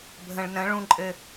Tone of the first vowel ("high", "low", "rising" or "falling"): low